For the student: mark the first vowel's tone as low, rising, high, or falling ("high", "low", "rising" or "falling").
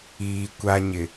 low